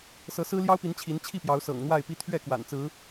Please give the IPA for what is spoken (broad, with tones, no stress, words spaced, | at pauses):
sɤ˨˦sɹ̩˦ ljɑ˦ʊ̯pi˨˦n t͡ɕʰi˨˦nt͡ɕʰi˥˨pjɑ˨˦ʊ̯sɤ̰˨˩ŋ n̪wa˥˨ɪ̯pi˦ t̪ʰɥɛ˥˨kwa̰˨˩n t͡sɹ̩˨˦